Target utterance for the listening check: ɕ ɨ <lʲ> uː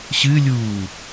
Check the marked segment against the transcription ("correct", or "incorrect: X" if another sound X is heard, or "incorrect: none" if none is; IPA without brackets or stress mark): correct